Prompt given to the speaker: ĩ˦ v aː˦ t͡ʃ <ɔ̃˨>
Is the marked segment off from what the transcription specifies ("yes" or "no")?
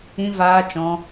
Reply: yes